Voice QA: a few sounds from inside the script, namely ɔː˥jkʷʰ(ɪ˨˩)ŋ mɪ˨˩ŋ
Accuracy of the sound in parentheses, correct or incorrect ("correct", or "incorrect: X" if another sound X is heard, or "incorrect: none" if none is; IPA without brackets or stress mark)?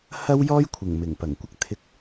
correct